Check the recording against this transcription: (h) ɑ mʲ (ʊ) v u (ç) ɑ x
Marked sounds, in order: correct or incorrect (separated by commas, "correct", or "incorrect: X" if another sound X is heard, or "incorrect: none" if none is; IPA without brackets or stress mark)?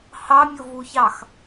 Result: correct, correct, correct